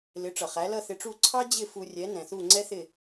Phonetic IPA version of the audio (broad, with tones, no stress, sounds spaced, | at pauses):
l ɪ˩˥ ʈ͡ʂ ʌ˩ χ æ˩˥ l ʌ˥˩ θ ɪ˧ ʈ͡ʂ u˥˩ ǀʰ ɑ˥ d͡ʑ ɪ˥˩ f u˧ rʲ ɛ˩˥ n ɛ̃˩ θ u˥˩ ŋ͡ǀ ɛ˥ θ ɪ˥˩